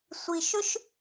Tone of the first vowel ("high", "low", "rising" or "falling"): low